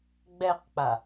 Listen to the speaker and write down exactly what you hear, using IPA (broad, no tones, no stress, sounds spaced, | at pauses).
ɡ͡b ɛ q k͡p a